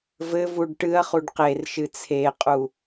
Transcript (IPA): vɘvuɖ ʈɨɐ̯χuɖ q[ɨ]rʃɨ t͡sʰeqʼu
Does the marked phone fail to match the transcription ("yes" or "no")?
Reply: yes